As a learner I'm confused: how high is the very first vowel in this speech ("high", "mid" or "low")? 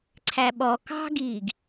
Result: low